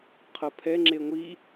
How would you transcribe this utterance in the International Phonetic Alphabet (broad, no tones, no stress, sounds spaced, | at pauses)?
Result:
qʰ ɤ pʰ ɛ ŋ͡ǁ e ŋʷ i